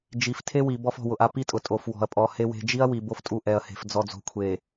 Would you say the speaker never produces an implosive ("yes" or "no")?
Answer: yes